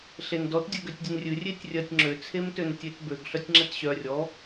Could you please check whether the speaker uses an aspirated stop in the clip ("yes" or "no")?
yes